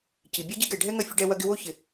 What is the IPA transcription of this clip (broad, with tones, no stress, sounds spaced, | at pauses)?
c i˩ bʲ ɛ˥ ɟ i˥ ɡ ɛ˨ ɖʱ ɛ˥ ŋ ɐ˦ fʲ ə˥ ɖ ɛ˥ w ɐ˥ ɡ ɪ˦ w o˥ ç ɪ˨